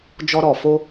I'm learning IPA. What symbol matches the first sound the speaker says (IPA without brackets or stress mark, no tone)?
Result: d͡ʒ